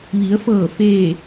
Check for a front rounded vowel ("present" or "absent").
absent